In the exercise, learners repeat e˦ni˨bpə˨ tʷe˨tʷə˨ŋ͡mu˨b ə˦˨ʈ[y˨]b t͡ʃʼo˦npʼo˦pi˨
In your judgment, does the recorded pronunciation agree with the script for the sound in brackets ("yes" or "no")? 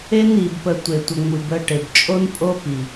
no